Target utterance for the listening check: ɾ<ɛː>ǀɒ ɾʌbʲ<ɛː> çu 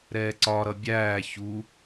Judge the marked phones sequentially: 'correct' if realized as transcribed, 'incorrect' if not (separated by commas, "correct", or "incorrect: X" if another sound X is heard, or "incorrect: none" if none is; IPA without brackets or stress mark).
correct, incorrect: æː